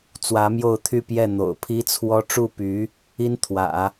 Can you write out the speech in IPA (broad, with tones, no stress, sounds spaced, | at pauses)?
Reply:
t͡s w ä˧˥ m j o˥˧ ʊ̯ t̪ʰ y˥˧ p j ɛ˥˩ n̪ o̰˨˩ ʊ̯ pʰ i˥ t͡sʰ w ɔ˥ ʈ͡ʂ u˥˩ p y˧˥ | i˥ n t̪ʰ w ä̰˨˩˦